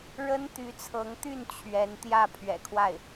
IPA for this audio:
ɻ ə˥ n t̪ y˧˥ t͡sʰ ɤ˧˥ ŋ t̪ y˥˩ n t͡ɕʰ ɥ ɛ˧˥ n t̪ j ä˥˩ pʰ ɥ ɛ̰˨˩ kʰ w a˥˩ ɪ̯

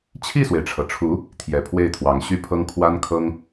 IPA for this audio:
t͡ɕʰ i˥˩ s w e˩ ɪ̯ ʈ͡ʂʰ ɤ˩ ʈ͡ʂʰ u˧˥ | t̪ʰ j ɛ˨˩ pʰ w e˥˩ ɪ̯ t̪ʰ w ɑ˧˥ ŋ ɕ y˥ pʰ ɤ˥ ŋ kʰ w a˥ n kʰ ɤ˥ ŋ

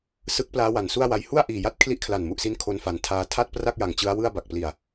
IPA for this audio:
s ɯ˦˥ k̚ p l aː˦˥ w a˨˩ n s u˥˩ a̯ w a˧ j h u˥˩ a̯ ʔ iː˨˩ j a˦˥ t̚ kʰ l i˦˥ ʔ kʰ l a˨˩ n m u˨˩ ʔ s i˦˥ n kʰ o˧ n f a˩˦ n tʰ aː˧ tʰ a˥˩ t̚ p r a˥˩ k̚ j a˨˩ ŋ t͡ɕ ɯ˦˥ a̯ w ɯ˥˩ a̯ b a˨˩ k̚ p l i˨˩ a̯

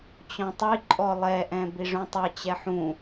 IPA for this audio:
t͡ɕ ɔ̃ tˤ i ǃʼ ɔ lˠ ɛ ʔ ɛ̃ b i ʐ ũ tˤ ɛ t͡ɕ ɛ ħ ũ

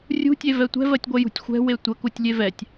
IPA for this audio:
rʲ ṳ tʲ e v ɛ tʷ ɛ̤ v ɜ tʲ ɡʷ ɛ j ṳ tʲ xʷ ɛ̤ w e tʷ ə k u tʲ lʲ e v ɛ tʲ

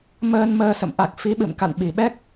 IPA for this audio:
m əː˧ n m əː˧ s ə̰˧˨ m ʔ a˨˩ k̚ f i˨˦ ɓ ɨ̰˧˨ m k a̰˧˨ n ɓ i˨˩ ɓ ɛ˦˥ k̚

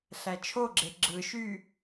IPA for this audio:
ɬ æ t͡ʃʰ o ɡ͡ǁ e ɡ͡ǁ ɯ ʃ y

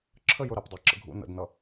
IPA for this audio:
ǁʰ ə j ʊ ɾ æ p dˤ æ ǁ ə̰ ɡʱ ṵ n ə̰ d n ʌ

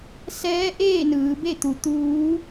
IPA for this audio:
s ɛː˧˥ ʔ eː˥˨ n ɯː˩˧ b e˥˨ t̪ u˩˧ t̪ uː˧˥

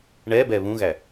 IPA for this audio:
ɳ ɛ b ɛ β ũ ɣ æ

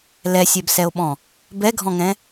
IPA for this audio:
l ɛ sʲ ɛ b s ɛ o̯ ɓ ɔ̃ | b ɛ ɡʱ ɔ̃ ŋ ɛ̃

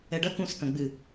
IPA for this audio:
ɛ ɖ ɐ k ũ s k ɐ̃ ɡ͡b ɨ

